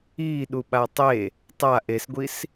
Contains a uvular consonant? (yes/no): no